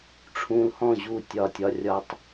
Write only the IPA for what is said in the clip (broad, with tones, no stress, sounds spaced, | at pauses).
ʈ͡ʂʰ ũ˧ l h ɔ̃˦˨ ʑ u˦˨ tʲ ɒ˦˨ tʲ ɒ˦ rʲ ɒ˦ tˤ